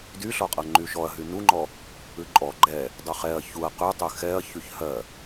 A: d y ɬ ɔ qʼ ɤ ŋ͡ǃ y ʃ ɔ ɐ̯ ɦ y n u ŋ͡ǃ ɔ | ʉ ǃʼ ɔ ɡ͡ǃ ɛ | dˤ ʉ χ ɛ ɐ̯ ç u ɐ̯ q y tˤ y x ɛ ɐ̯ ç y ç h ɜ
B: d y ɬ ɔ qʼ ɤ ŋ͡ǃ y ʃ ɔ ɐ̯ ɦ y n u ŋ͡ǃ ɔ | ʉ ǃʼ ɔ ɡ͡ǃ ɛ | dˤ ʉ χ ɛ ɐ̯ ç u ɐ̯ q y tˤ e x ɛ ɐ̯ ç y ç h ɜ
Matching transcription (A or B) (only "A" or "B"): A